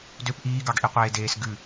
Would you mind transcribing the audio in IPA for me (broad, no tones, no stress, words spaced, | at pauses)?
døp ʔiːɡɑɡʔiqʷeː deːsɡʉ